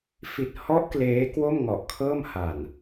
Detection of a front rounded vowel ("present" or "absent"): absent